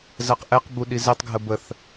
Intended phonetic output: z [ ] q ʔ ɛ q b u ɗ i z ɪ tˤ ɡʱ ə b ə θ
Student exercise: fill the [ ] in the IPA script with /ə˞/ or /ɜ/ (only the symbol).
ɜ